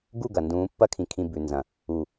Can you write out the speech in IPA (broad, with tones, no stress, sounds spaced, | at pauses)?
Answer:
ɡ u˦˨ ɡ ɐː˨ n d ũː˨˦ pː ɐ˧ kʰ ĩ˨ kʰ ĩ˨ b ʉ˨ n z ɐ̃˨ | u˨